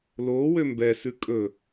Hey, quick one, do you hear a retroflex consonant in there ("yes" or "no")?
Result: no